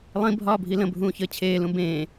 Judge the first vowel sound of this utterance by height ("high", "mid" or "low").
high